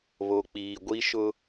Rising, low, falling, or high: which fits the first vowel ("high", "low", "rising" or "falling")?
low